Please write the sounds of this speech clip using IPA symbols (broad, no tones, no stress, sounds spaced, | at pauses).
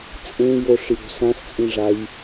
t͡sʼ ẽ j o ʂ j o̤ s ã s t͡sʼ ĩ ʐ a j